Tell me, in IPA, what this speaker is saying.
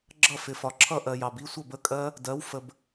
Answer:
ɡ͡ǁʌ˥˨fɪ˨fɒ˨ǁʰʌ˥˨ ʔɜ˨jɑ˨bi˧˥˧ sʷʌ˥˨bə˧˥˧kʼɜ˦˥ | dɜ˨˦w fə˨b

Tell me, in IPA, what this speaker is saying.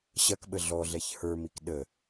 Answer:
ɕɐkɓə ɮɔɮɛç hə˞mik ɗə

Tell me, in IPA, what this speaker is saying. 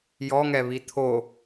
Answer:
jɔŋɛβi t̪ʰo

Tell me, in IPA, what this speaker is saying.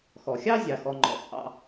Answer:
xɔ˩xʲɑ˥ zʲɑ˩xɔ˩ŋ͡ǃɔ̰˩ t͡sʼɑ̰˨

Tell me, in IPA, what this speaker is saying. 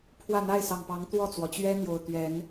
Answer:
pʰwä˥˨n̪a˥˨ɪ̯sɑ˨˩ŋpɑ˨˦ŋ t̪wɔ˥˨t͡swɔ˩t͡ɕɥɛ˦n̪jo˨˩ʊ̯ t̪ɥɛ˨˦n

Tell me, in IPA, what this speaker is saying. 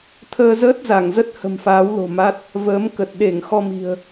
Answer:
t̪ʰəː˧zəː˦˥t̚ za˧˩ŋzə˦˥t̚ hə̤˨˩mfaː˨˦wlo̤˨˩ ma˦˥t̚ | vəː˨˦m kə˨˩t̚ ɗe˧˩ŋ xɔ˧mi̤˨˩ə̯

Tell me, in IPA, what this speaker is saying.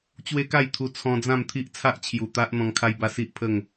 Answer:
t͡ɕwe˦ka˥˧jt̪ʰu˧ t͡sʰɔ̃˧d͡zã˥˧mt̪ʰi˦ʔ t͡sʰa˦ʔ t͡ɕʰju˨˩t̪a˦ʔ n̪ɔ̃˧ŋkʰa˦jba˦ si˦ʔpʰə˥˧ŋ

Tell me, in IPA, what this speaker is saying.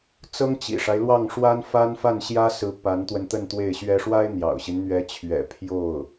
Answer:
t͡sɤ˥ŋt͡ɕḭ˨˩ʂa˦ɪ̯ lwɑ˥˩ŋʂwa˥nfa˥nfa˥˩n ɕjä˥sɹ̩˧˥ pa˧˥nt̪wə˧n t̪ə˥˧nt̪we˥˩ɪ̯ɕɥɛ˥ ʂwa˥ɪ̯n̪jɑ̰˨˩ʊ̯ɕi˦n n̪ɥɛ˧˥t͡ɕʰɥɛ̰˨˩ pʰjo˥˩ʊ̯

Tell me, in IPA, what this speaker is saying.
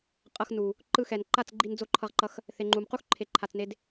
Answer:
qʼʌ˧x nu˨ | ǃɯ˧xɛ˨nǃa˦˨t͡sɡ͡ǃi˧n d͡zo˦˨ǃʰʌ˧ʁǃʌ˧x | θe˨ŋ͡ǃu˨mqu˦xǃʰe˨ ǃʰa˧t͡sne˦d

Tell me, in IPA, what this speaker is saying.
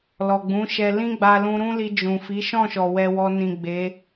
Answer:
lɔ˨ɡ͡bũ˨˦ʃɛ˧ lĩ˦ɡ͡ba˧lũ˧ ɾũ˦li˧ d͡ʒũ˨ fi˨˦ʃɔ̃˦˨ʃɔ˨ wɛ˧wɔ˧ nĩ˨ ɡ͡be˨˦

